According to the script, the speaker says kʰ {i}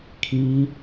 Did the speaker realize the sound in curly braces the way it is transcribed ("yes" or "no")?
no